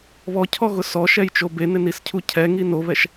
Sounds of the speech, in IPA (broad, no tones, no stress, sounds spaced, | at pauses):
β ɔ cʰ ɔ ɣ ʊ s ɔ ʃ ɛ j t͡ʃ o b e n ɪ n i s cʰ u cʰ ɛ ŋ i n o β ɛ ʃ